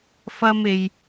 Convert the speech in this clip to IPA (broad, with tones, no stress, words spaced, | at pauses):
fɐ˥me˧j